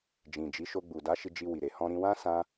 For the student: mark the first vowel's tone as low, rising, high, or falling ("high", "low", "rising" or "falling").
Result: low